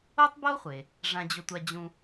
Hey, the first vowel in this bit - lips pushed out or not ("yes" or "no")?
yes